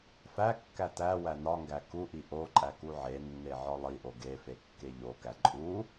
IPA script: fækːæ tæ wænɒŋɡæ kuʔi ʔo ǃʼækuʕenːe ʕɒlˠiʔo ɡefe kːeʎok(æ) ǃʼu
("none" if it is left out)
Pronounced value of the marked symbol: æ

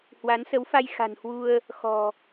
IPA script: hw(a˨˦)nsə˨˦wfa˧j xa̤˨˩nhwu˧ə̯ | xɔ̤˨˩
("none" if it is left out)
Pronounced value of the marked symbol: a˨˦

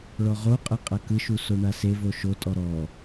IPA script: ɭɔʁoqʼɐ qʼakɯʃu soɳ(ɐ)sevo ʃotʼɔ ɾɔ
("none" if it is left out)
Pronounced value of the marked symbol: a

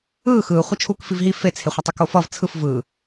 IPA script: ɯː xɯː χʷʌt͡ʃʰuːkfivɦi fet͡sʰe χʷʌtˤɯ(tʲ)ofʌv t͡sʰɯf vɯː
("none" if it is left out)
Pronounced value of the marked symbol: k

